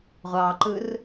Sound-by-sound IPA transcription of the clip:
ʁʷ ɑː ǃ ɯ r

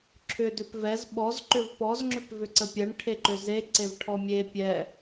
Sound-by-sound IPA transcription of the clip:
ǁʰ ʏ d ʏ p v ɛ z ɓ ɔ z ǃ ʏ v p ɔ z ŋ͡ǁ ʏ p v ʏ ǀ ə pʲ ɜ ɳ ʈʰ e ǃ ʏ z e ǀ e v ʈʰ ɔ mʲ e pʲ ɛ

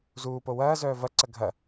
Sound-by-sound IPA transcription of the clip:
z uː p o w ɐː z œː v ɐ ǀ ɐ ɡʱ ɐ

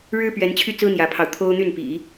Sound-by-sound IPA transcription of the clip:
ɻ ɻ̩˥ p ɥ ɛ˧˥ n t͡ɕʰ y˥˩ t͡s ɹ̩˥ n̪ j ä˧˥ pʰ ɑ˧ ʊ̯ t̪ʰ o˥ ʊ̯ n̪ y˥˩ n p ḭ˨˩˦

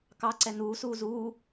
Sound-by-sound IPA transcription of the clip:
k ɑ ǀ ɛ n uː s uː z uː

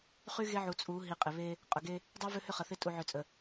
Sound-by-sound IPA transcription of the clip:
χ y˦ ɣ e˦ ʕ u˨ t͡sʼ u˨˦ ɦ i˨ qʼ ɪ˨ β e˦ | qʼ ʊ˨ ɡ e˦ | dˤ y˦ v ø˦ h ʏ˦ χ ɐ˨ θ ɪ˦ tʼ u˨ ʕ ø˨ t͡sʼ ə˨

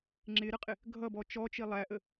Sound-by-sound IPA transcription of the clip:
ŋ͡ǁ ɪ ɾ ə qʼ ɪ | ɡʱ ʌ b ɔ t͡ʃ ɔ t͡ʃ i lˠ æ ʔ ə

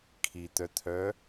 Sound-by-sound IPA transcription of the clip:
kʰ i t̪ œ t̪ʰ œ

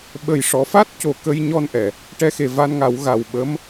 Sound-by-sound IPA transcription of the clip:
ɓ ə˨˩ j ʂ ɔ˨˩˦ f a˦˥ t̚ c o˨˩ k ə˧ j ɲ ɔ˧ n ʔ ɛ˨˩˨ | ʈ ɛ˧ x e˨˩ v a˧ n ŋ a˨˩˦ w ɣ a˨˩ w ɓ ə˧˥ m

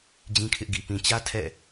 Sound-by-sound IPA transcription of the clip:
d͡ʑ ĩ˦ kʰ ɪ˦ ʔ ɡ i˨ p ĩ˨ t͡ɕ ä˦ tʰ ɛ̰˦˨

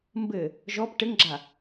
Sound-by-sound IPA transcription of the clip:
m b ɘ | ʒ ɔ p ʈ ɘ ŋ ɡ͡ǁ a

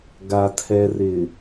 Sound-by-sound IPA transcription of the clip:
ɡ a˨ tʰ ɛ˨ r ɪ˨

